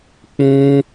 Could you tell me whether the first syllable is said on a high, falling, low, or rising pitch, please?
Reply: high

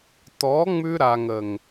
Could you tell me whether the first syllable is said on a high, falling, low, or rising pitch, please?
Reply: rising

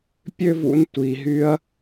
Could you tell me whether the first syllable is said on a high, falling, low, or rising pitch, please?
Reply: high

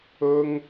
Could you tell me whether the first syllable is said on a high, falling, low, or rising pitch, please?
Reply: high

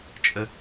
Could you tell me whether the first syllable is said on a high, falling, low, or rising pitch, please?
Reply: high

